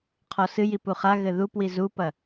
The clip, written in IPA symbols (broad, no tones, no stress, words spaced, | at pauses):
qʰɔsɨji puχaɣɘ ðupwi zupɐ